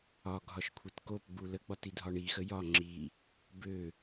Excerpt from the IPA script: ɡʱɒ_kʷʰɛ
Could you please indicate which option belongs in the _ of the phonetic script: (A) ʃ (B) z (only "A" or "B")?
A